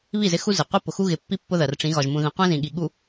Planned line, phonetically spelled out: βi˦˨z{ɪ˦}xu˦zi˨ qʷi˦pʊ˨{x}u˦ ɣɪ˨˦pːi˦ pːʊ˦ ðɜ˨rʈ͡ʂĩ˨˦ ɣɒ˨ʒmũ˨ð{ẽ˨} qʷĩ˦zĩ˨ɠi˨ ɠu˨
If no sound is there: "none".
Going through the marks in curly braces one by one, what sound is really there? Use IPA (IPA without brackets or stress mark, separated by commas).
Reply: ɪ˦, x, ĩ˨